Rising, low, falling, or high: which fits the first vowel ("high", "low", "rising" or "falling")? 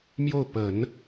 falling